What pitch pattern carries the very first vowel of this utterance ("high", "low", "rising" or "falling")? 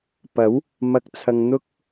rising